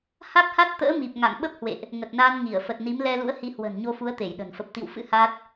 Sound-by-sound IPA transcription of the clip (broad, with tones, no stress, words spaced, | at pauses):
ha˦˥k̚ha˦˥t̚t̪ə̰ː˧˥mi˨˩p̚ ŋa̰˧˨ŋɓə˦˥p̚hwḛ˧˨ʔ | ŋə˨˩t̚naː˧nŋi˧˩ə̯ fə˨˩t̚ni˨˦m lɛ˧lṵ˧˥ə̯ hi˨˦hwə̤˨˩nɲo˧fu˨˦ə̯ t̪e˧˩jɗə̤˨˩n fə˨˩p̚t̪ḭ˧˨wfɨ̰˧˥ ha˦˥t̚